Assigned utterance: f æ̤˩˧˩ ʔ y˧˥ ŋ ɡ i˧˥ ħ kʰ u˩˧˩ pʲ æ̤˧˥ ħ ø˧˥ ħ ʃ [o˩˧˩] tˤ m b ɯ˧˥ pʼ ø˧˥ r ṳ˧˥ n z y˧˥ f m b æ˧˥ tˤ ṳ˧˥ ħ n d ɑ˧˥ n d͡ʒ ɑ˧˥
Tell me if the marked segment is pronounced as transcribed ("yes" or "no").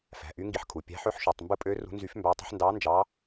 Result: yes